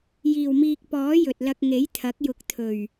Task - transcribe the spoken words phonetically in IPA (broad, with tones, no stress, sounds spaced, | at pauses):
j iː˨˩ w m iː˨ k̚ p ɔː˨˥ j ɵ˨ t̚ l ɐ˧ k̚ ŋ e˨˥ j t̪ʰ ɐ˨˥ k̚ j ʊ˨˥ k̚ t̪ʰ ɵ˨˩ ɥ